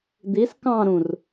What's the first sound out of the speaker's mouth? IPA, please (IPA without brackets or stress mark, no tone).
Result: d̪